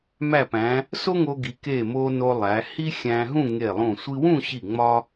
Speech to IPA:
m æ˧˩ p æ̃˩˧ | s o˥ ŋ o˧ ɡ i˩˧ k e˧˩ m o˧ n o˧ lˠ æ˩˧ h i˥ xʲ æ̃˧ ɦ ũ˥˧ ŋ e˧˩ lˠ ũ˧˩ sʷ i˧ w ũ˥˧ ɕ i˧˩ ŋ͡m ɒ˥

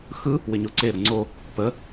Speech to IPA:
x ɯ | w ɪ ɲ o ǀ e ɾ ə ŋ͡ǀ o | p ə

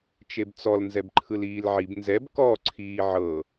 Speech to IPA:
t͡ʃ e b t͡s ɔ l n z ɛ b ǃʰ ɯ l iː l ʕ i b n z ɛ b k ɔ ǀʰ iː ʕ ɤ

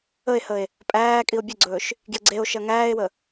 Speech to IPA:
ə e̯ h ə e̯ | pʼ æː kʼ i o̯ bʲ ə ɡ͡ǀ ɵː ʃ | ɡ j ə ɡ͡ǀ e o̯ ʃ ɐ ŋ æː e̯ w ə

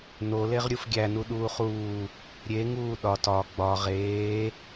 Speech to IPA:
n o l e ʁ ɾʲ u f ɡʲ æ n u ɗ uː χ uː | ɾʲ e ŋ uː ɗ ɒ t ɒ ɡ͡b ɒ ʁ eː

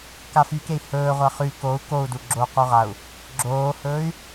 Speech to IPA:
k a f y k e i̯ h ɵː ʁʷ a χ y k o u̯ k o u̯ d u ɡ͡ǁ o q u ʁ a u̯ | ɡ͡ǁ oː h ɵː y̯

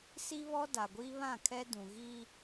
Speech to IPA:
s i˦ β ɔ˦ d a˨ ɡʷ iː˦ β ã˦˨ kʰ ɛ˦ d ũ˨ ɣ iː˦

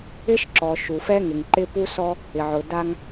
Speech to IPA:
ɪ˦ ʃ ǁ ɔ˨ ʃ u˨ f ɛ˦ ŋ ɪ˨ ŋ ǃ ɪ˦ p u˦ s ɔ˦ | ɪ˨ ʕ ʊ˨ d a˦ ŋ

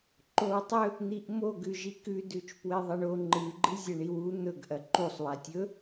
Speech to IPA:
ǃ o w tˤ ɵ | n̪ i ʔ m o ɡ ʉ ʒ i k ʉ d ʉ t͡ʃ p w e ðˤ ɐ ɳ o ŋ͡ǃ ɨ ɡ͡ǃ ɨ zʲ ɐ ɳ i w u n̪ ɵ ɡ ʔ ɐ ǃ u sˤ w a tʲ ɵ

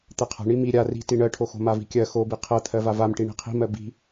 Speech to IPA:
t̪ ɜ qʰ a̤ ɳ i m i ɾʲ a r i̤ t i ɳ ɜ ʈʰ o x o̤ m a v i̤ kʲ ɜ x o b i qʰ ɜ t̪ʰ ɜ v a v a m ʈ i ɳ i̤ qʰ i̤ m ɜ b i̤

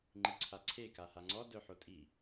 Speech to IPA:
ŋ͡ǃ i ǀʰ a ǀʰ e k a h a ŋ͡ǀ ɔ d œ ħ o tʼ i

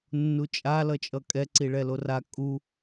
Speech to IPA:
nː u t͡ʃʼ a l ʌ t͡ʃʼ ʌ kʼ ɛ ǀ i ɭ ɛ l o r a kʼ u

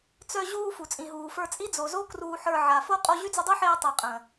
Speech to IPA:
t͡s œ˧ ʑ uː˧ f u˨ t͡sʼ ĩ˨ ɦ uː˨ f ə˞˧ t͡sʼ i˦ d͡z o˨ z o˦ k r uː˧ ħ ə˞˧ ʕ a˨ f o˦ qʼ o˧ ʑ y˦ d͡z y˧ dˤ u˦ ħ eː˧ tˤ e˨ qʼ ə̃ː˨

